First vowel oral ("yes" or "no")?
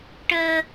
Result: yes